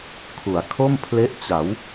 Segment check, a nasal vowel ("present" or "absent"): absent